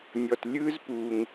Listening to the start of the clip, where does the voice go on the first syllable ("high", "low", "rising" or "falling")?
low